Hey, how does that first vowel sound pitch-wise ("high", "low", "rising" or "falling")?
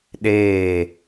falling